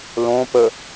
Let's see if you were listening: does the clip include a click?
no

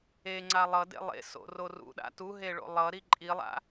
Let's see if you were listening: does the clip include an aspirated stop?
no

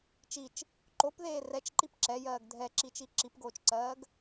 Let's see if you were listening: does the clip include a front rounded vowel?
no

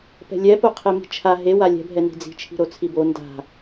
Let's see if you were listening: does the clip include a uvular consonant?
yes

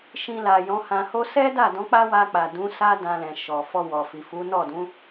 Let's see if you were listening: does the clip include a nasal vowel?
yes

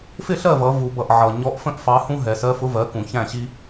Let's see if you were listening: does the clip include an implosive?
no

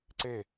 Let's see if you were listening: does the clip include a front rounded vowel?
no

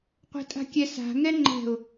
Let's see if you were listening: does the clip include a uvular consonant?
yes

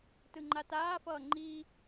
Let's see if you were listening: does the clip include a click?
yes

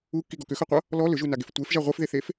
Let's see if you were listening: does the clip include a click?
no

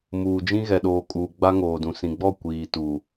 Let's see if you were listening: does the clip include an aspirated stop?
no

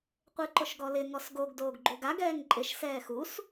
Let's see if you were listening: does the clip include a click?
yes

